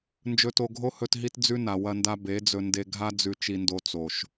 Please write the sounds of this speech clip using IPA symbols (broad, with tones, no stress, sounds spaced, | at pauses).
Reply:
n d͡ʒ ɵ˧ t o˧ ɡʱ o˦ h ɵ˧ t ɦ i˦ t d͡z ʉ˦ n a˨ w ɐ˧ n d a˧ b e˨˦ d͡z ɵ˧ n d e˧ ɡʱ a˦ d͡z ʉ˧ t͡ʃ i˧ n d o˧ t͡s o˨ ʃ